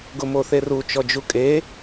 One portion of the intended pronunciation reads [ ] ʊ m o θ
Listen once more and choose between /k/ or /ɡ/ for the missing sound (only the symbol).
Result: ɡ